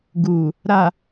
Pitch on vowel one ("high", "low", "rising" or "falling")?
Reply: low